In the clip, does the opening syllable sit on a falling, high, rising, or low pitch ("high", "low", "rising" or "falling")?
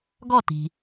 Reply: falling